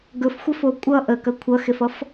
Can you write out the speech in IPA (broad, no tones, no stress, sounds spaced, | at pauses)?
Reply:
ɡ ɵ f xʷ ɐ f o kʷʼ ʌ ʔ ə k ɐ kʷʰ ʌ x e f ʌ f